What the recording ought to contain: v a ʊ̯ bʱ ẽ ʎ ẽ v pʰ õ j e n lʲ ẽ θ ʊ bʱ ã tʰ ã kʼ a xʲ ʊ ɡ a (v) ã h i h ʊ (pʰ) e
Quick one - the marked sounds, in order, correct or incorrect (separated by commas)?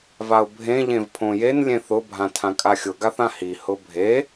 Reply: incorrect, incorrect